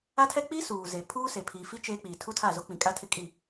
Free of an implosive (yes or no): yes